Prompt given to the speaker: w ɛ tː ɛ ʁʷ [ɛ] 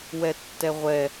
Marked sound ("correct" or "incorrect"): correct